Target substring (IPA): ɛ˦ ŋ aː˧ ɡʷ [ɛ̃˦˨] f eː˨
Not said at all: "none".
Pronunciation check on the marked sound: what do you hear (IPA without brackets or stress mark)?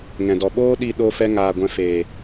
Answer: ɛ̃˧